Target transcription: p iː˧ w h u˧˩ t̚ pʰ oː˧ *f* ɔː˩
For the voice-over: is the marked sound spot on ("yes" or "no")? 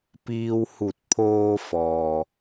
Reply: yes